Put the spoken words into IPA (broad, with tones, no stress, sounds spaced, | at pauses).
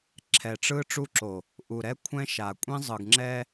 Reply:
ǁʰ ɛ˨ ʈ͡ʂ ɯ˦ ʈ͡ʂ u˦ ǁ o˨ | ʔ u˨ ɾ ɛ˦ kʷʰ ɛ̃˦ ʃ a˨ kʷʼ ĩ˦ zˤ ɯ˨ ɡ ŋ͡ǁ ɛ˦